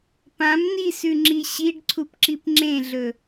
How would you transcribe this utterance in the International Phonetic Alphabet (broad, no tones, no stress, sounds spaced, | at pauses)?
p ã m n i s ʉ ŋ͡ǁ i ɕ i ɖ ǀʰ u p ǁ i p ŋ͡ǁ ẽ ɮ ɵ